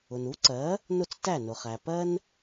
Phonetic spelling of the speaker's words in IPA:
ʊ˩nu˩˥ǀɜ˩˥ | nʊ˥˩t͡stæ˥˩nʊ˩χæ˩ pɜ˥n

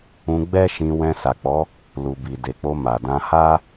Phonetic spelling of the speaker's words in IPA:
ũ˧ɡ͡bɛ˦ʃĩ˧ wɛ̃˧sa˨k͡pɔ˨˦ | lu˨ bi˨ de˨k͡po˧ ma˨ dã˧ha˦

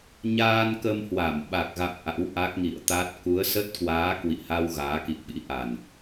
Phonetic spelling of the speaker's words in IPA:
ɲaː˧nkə˧mhwa˧˩m ɓa˨˩k̚ɣa̰˧˨m ʔa̰˧˥wʔa˦˥k̚ŋḭ˧˨ə̯t̪a˦˥t̚ ku˨˦ə̯sə˦˥t̚kwaː˨˦ kwḭ˧˨ha˧w ɣaː˨˦kḭ˧˨ə̯ɓḭ˧˥ ʔa˨˩n

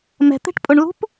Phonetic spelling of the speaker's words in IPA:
mɛ̤t̪e̤ʈpʼʊɳlṳp

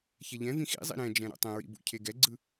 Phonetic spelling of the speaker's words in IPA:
çɛʎɛ̃vĩ xḭzˤḭ ɾɛ̃d͡ʒɛ̃ ɾo̰tˤɛ̃ɹḭ bṵcʰeɡɛɡ͡ǀɯ

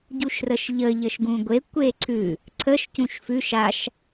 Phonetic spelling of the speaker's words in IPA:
ɟuʃrəʃʎə ʎəʃɡũɡʷe kʷeǀʰʉ | ǀʰəʃ cũʃfʉʃ aʃ

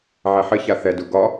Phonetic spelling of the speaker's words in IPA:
ʕɛħɘça θɛdu ɡɒ

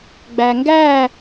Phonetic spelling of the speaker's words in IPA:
ɡ͡bæŋɡæ

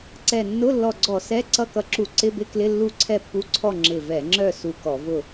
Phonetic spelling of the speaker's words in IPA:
ǀɛ˧˩ nːʊ˧˥˧ lːɔ˧˩ɡ͡ǀɔ˧˩˧ sɛ˧˥˧ ǀʌ˧˥˧kʌ˧˩ǁu˧˩˧ ǀɪ˧˥˧bɪ˧˥˧klɪ˧˥˧ lːu˥˨ǀʰɛ˥˨pːu˧˥˧ǀʰɔ˥˨ ŋ͡ǁɪ˧˩vɛ˧˩˧ŋ͡ǁœ˥˨ su˧˩kɔ˧˩˧vʊ˥˨

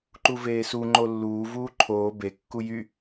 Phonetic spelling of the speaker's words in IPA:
ǃuveːsu ŋ͡ǃolːuː vuːǃʰoː be kːujy

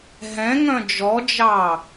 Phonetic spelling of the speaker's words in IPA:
ɦɛ̃ŋœ̃ d͡ʒɔd͡ʒɑ

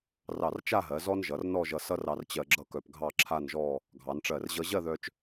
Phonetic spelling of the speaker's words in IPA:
rɑ˧˩rt͡ʃa˥˧ɦɜ˩˧ zɔ˥nʒʌ˩˧rnɔ˥˧ʒʌ˧ sʌ˥rɑ˧rt͡ɕɜ˧ ɡ͡ǁʌ˥˧kœ˧p ɡʱɑ˥˧ǁʰa˥˧nʒɔ˥˧ | ɡʱɑ˩˧nʈ͡ʂɜ˧˩rʑʌ˥ ʑɜ˥˧ðœ˧t͡ʃ

